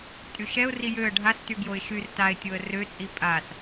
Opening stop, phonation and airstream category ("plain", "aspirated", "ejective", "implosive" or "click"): ejective